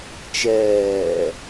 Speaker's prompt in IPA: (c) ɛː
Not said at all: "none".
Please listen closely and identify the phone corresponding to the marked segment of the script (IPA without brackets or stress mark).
t͡ʃ